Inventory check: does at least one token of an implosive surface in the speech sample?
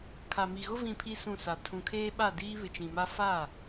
yes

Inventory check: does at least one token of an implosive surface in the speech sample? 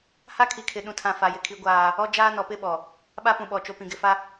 yes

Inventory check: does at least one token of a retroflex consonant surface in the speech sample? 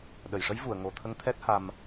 yes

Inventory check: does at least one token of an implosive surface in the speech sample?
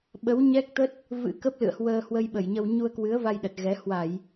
yes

